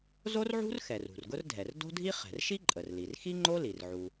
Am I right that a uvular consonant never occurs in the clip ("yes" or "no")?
no